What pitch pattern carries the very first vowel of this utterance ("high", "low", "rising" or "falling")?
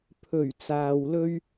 low